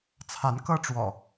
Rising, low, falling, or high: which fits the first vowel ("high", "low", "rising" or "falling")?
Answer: rising